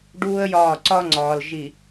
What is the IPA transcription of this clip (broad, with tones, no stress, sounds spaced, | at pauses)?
ɖ uː˦ ə̯ j ɒː˦˨ ǀ ɒ˦ ŋ͡ǀ ɒː˨ l ʒ i˨